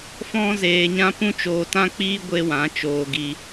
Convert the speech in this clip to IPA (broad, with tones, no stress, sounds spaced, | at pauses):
f ɔ̃˦ z eː˧ ɲ ã˦ p ũ˦ t͡ʃ oː˧ t ã˦ k͡p iː˦ ɡʷ e˦ w ã˨˦ t͡ʃ oː˧ ɡ i˧